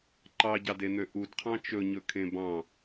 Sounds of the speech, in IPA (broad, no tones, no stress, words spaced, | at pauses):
ǃɑɟɑden̪ø ʔudqʰɑ̃ t͡ʃɵɲɵkʰẽ bɑ̃